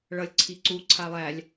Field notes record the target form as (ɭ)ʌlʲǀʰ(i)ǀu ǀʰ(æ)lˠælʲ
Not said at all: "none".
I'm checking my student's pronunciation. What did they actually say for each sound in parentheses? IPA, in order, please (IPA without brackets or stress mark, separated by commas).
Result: ɭ, i, a